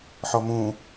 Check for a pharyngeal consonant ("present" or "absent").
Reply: present